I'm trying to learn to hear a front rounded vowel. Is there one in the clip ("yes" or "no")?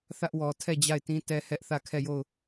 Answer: no